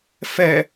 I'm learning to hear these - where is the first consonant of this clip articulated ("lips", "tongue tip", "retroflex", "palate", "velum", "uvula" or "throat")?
lips